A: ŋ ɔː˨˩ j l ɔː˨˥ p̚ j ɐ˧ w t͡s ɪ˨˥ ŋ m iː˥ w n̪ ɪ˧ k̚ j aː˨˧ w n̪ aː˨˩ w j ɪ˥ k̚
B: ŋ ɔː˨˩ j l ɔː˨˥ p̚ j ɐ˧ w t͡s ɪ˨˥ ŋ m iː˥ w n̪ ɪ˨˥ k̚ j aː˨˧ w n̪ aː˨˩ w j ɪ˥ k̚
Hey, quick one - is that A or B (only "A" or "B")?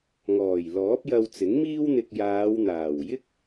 A